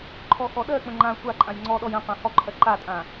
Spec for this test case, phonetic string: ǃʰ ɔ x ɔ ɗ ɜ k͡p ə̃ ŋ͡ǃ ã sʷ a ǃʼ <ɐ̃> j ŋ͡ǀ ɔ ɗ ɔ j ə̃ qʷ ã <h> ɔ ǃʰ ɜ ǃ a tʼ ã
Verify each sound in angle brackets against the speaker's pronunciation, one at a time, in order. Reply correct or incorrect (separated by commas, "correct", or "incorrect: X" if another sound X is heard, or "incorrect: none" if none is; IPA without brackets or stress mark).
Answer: incorrect: ã, correct